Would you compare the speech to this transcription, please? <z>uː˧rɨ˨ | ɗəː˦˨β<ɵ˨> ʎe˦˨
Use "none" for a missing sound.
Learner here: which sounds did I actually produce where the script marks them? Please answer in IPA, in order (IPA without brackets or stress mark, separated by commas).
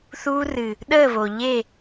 θ, o˨